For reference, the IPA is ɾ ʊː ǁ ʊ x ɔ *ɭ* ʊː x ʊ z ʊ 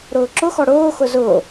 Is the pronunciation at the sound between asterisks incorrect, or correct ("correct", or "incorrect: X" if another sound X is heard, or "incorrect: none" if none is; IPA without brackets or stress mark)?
incorrect: ɽ